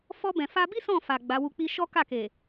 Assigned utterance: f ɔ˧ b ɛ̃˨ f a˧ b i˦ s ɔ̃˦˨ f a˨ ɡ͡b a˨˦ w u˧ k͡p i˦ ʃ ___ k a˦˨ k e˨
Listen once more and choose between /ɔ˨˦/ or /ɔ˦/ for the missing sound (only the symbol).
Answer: ɔ˦